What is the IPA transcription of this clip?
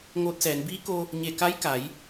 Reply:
ŋ oː˧˥ t̚ s ɛː˩˧ n b iː˧˥ k o˧ | ɲ e˧˩ k a˧˥ j k a˩˧ j

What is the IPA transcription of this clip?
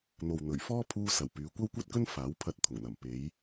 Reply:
n̪ o˨ w n̪ ɵ˨˩ ɥ f ɔː˥ pʰ uː˧ s ɐ˨˩ w p yː˨˧ kʷ ɐ˥ w kʷ ɐ˥ t̚ k ɵ˥ n f aː˨˥ w pʰ ɐ˧ t̚ t̪ʰ ʊ˨˩ ŋ n̪ ɐ˨˩ m p e˨˧ j

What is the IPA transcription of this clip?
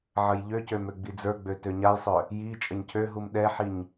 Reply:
ʕ ə j ʎ ø c ø m ø ɡ͡b i d͡z ə˞ ɡ͡b ø t ø ɲ a j sˤ œ | j i t͡ʃʼ ə ɲ cʰ ø ɦ u m ɗ ɛ ħ i ɲ

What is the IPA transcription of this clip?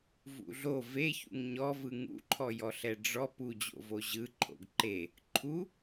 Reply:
v ṵ ɮ o v e ç ṵ ŋ ɲ ɔ v ɯ ŋ ṵ ǃʰ ɔ j ɔ ɬ ɛ ɖ͡ʐ ɔ p u d͡ʑ o̰ v o ʑ ɯ ǃʰ o̰ ɡ ǃ e | ǃʰ u

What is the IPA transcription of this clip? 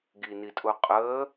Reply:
ɡ i n i tʼ ʊ qʼ əː

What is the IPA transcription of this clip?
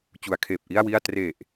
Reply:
t͡ɕ u˩˦ a̯ kʰ eː˨˩ p̚ ʔ i˥˩ a̯ w i˥˩ a̯ t r e˨˩ ʔ

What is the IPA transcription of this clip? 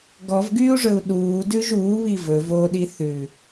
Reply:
ɡ ɔ v ɡ yː u̯ ʐ ɵ u̯ ɗ uː d ʉ ʒ uː β i v ɵ v o ɗ i θ ʉ

